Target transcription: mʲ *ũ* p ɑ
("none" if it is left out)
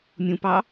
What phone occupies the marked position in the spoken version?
ũ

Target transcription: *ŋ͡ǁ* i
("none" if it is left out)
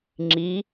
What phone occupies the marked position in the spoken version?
ŋ͡ǁ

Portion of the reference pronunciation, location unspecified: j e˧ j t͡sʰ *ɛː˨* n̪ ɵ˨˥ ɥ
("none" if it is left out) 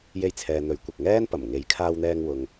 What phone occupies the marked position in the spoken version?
ɛː˨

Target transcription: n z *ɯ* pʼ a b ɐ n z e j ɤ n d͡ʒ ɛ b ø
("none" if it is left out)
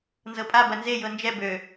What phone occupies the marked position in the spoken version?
ɤ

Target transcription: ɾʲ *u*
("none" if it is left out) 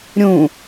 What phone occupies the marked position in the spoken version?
ũ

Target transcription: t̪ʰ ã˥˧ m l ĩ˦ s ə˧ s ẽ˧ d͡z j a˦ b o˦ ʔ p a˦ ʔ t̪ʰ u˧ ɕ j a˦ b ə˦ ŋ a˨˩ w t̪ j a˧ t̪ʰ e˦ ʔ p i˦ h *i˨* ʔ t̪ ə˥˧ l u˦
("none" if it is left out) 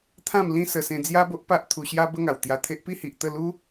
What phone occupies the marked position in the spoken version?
i˨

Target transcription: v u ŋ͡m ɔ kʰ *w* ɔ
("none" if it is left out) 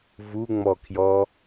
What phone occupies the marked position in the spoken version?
j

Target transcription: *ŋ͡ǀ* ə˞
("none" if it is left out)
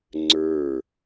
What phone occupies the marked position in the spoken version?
ŋ͡ǀ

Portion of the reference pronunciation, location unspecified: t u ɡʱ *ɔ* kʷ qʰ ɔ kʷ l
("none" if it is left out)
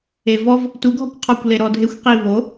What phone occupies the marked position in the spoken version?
ɔ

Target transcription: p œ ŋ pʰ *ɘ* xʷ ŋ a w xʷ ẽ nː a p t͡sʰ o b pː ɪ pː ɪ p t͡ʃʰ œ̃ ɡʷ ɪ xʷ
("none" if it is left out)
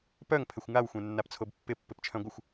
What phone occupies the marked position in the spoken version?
ɘ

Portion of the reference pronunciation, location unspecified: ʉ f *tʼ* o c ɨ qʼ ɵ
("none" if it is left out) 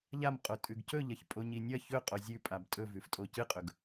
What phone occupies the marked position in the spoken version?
tʼ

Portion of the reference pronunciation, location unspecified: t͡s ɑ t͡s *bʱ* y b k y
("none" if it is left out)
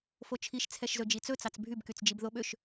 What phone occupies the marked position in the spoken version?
bʱ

